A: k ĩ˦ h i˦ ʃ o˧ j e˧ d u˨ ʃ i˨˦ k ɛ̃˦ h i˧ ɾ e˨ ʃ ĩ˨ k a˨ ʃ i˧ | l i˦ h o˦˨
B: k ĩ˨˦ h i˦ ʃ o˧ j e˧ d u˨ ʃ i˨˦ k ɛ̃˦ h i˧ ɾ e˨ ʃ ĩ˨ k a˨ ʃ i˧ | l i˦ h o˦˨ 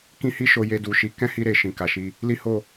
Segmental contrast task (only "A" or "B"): A